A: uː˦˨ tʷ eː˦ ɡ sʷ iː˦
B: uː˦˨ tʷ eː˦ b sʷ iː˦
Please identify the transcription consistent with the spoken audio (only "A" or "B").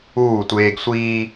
A